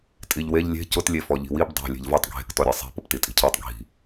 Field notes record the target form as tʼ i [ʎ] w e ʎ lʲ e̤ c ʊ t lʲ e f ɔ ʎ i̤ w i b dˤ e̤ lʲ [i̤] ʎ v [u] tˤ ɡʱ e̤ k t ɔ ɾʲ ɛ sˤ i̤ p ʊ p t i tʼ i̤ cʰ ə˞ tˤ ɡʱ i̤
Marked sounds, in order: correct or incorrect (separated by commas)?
correct, incorrect, incorrect